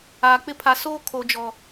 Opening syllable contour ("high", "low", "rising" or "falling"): low